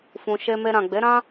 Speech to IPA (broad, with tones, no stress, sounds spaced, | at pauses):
f ũ˨ ʃ e˧ m e˧ ɾ ã˨ ɡ͡b e˨˦ ɾ ã˦